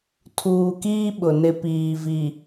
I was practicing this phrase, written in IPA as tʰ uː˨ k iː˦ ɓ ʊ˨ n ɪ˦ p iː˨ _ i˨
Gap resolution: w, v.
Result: v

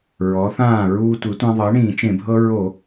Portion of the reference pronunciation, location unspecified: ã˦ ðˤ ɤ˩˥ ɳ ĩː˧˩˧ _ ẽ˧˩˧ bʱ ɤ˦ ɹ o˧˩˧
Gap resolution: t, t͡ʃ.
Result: t͡ʃ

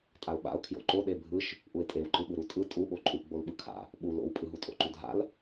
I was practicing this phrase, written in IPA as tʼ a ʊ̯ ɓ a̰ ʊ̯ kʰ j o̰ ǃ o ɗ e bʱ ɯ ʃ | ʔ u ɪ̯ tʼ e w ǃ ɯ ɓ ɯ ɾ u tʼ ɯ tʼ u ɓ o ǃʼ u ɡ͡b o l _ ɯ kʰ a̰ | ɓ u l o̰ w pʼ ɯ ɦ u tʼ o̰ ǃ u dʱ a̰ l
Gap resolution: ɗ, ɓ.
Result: ɓ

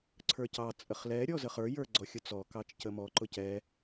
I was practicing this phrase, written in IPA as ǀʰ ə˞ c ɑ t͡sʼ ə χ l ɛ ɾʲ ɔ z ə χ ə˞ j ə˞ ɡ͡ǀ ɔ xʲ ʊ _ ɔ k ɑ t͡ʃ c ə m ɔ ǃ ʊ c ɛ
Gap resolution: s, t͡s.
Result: t͡s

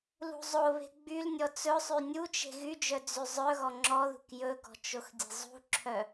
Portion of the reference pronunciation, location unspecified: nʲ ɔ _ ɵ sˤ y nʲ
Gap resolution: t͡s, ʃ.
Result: t͡s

